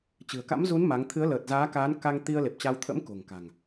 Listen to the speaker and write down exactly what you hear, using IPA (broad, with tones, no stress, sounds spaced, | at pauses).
t͡ɕ ɨ̤˨˩ ə̯ k a̰˧˥ m z u˨˦ n m a˨˦ ŋ t̪ʰ ɨ˨˦ ə̯ l əː˨˩ t̚ z aː˨˦ k aː˨˦ n k a˧ ŋ t̪ i˧ ə̯ l e˨˩ p̚ t͡ɕ a˧ w t̪ʰ ə̰˧˥ m k o̤˨˩ ŋ k a̤˨˩ ŋ